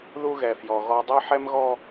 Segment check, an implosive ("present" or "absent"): absent